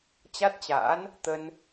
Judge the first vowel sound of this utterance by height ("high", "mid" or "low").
low